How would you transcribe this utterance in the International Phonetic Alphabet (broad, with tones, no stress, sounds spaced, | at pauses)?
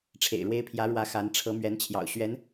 ʈ͡ʂʰ ḛ˨˩ ɪ̯ ɻ w e˥ ɪ̯ pʰ j ä˧˥ ɻ w ä˧˥ x a˧˥ n ʈ͡ʂʰ ɤ˧˥ m ɥ ɛ˧˥ n t͡ɕʰ j ɑ̰˨˩ ʊ̯ ɕ ɥ ɛ˧˥ n